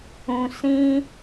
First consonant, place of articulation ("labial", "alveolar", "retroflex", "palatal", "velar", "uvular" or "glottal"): alveolar